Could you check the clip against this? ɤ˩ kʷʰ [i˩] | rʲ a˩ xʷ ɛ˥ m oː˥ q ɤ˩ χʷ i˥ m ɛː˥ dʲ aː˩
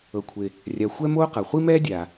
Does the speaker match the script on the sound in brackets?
no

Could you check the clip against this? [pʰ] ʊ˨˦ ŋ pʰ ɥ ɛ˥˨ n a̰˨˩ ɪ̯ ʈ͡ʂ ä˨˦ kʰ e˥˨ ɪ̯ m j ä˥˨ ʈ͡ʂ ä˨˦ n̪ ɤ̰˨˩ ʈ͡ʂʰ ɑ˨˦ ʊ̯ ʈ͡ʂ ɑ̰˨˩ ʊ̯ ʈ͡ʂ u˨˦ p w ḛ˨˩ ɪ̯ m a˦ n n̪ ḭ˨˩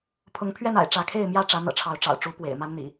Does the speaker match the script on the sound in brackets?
yes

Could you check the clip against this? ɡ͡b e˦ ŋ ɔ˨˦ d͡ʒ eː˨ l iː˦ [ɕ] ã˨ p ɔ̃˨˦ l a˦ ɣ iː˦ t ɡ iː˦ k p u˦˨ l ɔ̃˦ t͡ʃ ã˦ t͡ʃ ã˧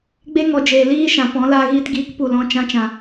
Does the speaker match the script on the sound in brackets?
no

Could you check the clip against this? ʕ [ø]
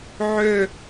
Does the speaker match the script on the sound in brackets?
yes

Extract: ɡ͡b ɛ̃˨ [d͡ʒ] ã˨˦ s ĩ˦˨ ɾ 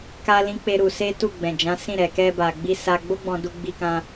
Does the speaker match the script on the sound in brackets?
yes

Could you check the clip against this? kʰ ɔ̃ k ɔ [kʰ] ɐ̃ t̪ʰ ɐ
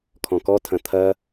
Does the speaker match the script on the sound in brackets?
no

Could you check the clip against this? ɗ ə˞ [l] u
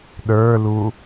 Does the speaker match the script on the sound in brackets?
yes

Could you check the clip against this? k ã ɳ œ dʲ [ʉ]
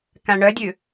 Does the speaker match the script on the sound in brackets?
yes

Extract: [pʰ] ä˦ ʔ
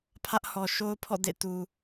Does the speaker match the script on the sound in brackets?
yes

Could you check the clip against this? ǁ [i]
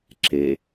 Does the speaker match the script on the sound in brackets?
no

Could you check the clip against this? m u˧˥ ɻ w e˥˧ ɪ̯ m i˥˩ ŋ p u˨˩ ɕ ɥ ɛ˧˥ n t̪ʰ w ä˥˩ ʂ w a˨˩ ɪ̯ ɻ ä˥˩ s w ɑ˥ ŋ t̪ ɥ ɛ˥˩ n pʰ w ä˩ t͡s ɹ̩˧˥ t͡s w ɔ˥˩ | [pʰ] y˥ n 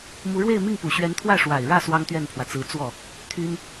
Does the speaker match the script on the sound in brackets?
no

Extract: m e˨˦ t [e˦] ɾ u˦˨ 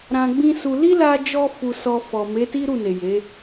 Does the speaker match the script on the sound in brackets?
no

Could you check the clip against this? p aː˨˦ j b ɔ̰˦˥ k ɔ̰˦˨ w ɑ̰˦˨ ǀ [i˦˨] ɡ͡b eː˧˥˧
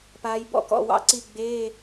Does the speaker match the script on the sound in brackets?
yes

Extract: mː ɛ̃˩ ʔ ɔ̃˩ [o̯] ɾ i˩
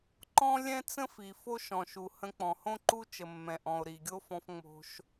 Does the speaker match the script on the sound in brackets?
yes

